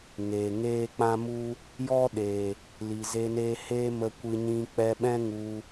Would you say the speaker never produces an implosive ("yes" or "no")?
no